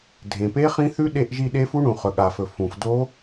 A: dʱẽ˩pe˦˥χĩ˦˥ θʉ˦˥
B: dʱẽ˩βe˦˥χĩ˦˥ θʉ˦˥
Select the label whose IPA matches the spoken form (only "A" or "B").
A